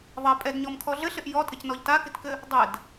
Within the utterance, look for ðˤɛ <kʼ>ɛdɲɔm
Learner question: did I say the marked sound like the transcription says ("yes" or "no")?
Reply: no